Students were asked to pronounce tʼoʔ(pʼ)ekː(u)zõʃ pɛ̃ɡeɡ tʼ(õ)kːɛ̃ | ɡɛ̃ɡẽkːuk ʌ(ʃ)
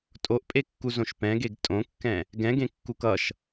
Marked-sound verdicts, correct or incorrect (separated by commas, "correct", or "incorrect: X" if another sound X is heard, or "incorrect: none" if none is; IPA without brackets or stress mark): correct, correct, correct, correct